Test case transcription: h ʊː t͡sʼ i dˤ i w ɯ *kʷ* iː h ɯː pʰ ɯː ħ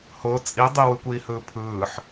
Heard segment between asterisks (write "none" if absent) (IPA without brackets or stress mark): kʷ